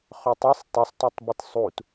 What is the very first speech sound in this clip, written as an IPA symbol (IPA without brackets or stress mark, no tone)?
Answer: χ